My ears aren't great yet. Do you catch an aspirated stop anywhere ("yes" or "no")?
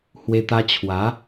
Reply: yes